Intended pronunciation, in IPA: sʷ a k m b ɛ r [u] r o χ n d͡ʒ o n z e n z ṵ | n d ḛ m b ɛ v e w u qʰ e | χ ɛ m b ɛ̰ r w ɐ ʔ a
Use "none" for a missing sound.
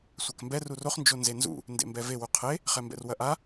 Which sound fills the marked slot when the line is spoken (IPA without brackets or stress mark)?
u